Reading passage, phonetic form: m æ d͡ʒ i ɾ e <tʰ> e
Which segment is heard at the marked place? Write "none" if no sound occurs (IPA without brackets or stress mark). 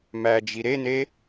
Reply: n